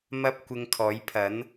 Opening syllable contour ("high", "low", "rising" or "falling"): high